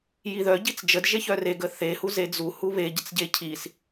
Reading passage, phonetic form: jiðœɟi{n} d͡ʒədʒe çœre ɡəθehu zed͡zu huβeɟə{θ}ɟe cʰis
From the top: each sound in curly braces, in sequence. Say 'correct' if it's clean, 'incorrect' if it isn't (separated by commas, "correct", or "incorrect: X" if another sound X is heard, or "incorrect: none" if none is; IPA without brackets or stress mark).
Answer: incorrect: t͡s, incorrect: t͡s